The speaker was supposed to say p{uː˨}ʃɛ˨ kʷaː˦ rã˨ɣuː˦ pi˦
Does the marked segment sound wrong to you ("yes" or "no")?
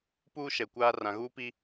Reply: yes